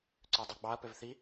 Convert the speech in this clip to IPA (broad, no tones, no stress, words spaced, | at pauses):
ǀødˤyɡ͡bɑɐ̯ pøvθi